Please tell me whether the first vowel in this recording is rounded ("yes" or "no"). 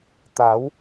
no